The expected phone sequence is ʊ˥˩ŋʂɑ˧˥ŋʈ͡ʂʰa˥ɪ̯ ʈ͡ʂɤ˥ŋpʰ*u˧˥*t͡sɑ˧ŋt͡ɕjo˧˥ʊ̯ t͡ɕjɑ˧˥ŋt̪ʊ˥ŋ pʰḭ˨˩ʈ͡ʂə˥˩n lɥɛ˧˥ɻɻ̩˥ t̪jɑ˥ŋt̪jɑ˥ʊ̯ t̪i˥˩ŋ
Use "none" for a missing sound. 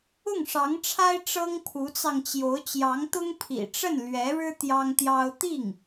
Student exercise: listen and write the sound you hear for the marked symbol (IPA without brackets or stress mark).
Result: u˧˥